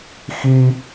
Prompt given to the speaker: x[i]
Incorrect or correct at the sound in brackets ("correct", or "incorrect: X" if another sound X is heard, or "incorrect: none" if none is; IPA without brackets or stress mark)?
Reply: correct